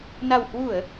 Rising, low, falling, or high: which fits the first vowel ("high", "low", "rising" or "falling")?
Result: low